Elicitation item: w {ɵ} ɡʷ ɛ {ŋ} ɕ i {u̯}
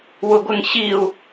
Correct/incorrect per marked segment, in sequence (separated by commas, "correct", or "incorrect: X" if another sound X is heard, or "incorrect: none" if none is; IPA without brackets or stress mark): incorrect: ʊ, correct, correct